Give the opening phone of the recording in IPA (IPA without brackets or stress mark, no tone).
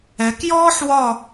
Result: ɛ